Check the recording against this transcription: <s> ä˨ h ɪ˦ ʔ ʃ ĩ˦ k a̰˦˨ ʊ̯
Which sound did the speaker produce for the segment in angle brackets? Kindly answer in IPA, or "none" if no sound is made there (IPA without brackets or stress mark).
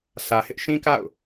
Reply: s